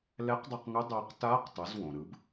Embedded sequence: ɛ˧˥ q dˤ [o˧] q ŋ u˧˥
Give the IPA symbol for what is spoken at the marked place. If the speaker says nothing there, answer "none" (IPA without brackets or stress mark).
u˧